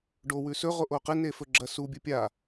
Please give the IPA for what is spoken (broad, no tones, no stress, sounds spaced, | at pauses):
ɖ o w ʉ s ɵ ʁ o ʔ o q ɨ n e f ɵ ɡ͡ǁ ɐ s u bʲ ɨ pʲ a